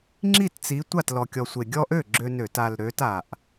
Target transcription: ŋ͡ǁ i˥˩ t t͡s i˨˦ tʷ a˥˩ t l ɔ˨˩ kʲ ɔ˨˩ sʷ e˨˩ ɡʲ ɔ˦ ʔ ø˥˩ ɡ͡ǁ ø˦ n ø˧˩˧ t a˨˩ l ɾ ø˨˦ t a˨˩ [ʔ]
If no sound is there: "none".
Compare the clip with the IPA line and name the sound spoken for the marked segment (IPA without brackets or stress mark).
ʔ